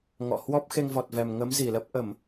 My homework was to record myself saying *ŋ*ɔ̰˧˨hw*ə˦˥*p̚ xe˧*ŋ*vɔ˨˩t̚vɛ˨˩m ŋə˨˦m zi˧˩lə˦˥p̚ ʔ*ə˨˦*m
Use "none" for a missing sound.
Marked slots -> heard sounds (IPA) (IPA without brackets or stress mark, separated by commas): ŋ, ɔ˦˥, ŋ, ə˧˩˨